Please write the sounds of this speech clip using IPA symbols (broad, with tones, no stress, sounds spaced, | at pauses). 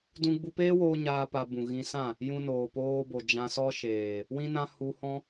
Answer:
d ũ˧ ɡ͡b u˧ p eː˦ w oː˧ ɲ aː˦ p a˧ b ũ˨ ɣ ĩ˧ s ã˦˨ | j ũ˧ n oː˨ p oː˧ b o˨ d͡ʒ ã˧ s ɔ˦ ʃ eː˨ | w ĩ˦ n ã˦ h u˧ h ɔ̃˦